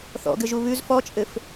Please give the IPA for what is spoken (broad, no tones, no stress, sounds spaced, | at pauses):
θ ɔ̰ ɡ ɘ ʒ u β ʉ z f ɔ t͡ʃʼ ɘ f